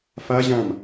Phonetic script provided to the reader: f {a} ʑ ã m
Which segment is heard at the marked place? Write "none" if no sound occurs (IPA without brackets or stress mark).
a